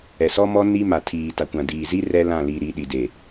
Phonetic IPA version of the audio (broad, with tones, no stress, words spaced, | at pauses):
ɛ˨sɔ˦mɔ˦ ni˦ma˨ tʰiː˨ta˨kʷã˨ diː˨zi˦ rɛ˦lã˦˨li˨ ɾi˨ ɗi˨de˨